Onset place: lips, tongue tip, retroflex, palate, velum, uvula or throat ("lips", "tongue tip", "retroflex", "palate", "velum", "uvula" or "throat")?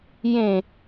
palate